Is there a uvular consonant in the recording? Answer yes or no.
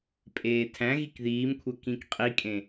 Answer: yes